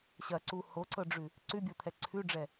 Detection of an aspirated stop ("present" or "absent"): present